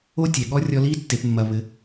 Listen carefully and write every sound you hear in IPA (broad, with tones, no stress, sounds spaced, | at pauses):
o˥ tʲ ɛ˩ ɠ ɔ˥ rʲ ɔ˦ l i˥ tː e˨ p mː ɐ˨ β ɘ˨